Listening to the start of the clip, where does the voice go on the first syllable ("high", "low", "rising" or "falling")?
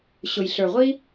low